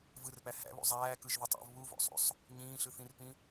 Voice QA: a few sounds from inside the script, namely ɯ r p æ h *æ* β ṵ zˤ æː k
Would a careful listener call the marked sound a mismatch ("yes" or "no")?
yes